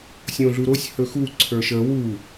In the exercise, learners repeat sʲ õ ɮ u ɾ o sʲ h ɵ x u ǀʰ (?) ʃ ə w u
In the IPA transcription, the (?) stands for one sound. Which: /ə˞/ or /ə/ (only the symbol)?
ə˞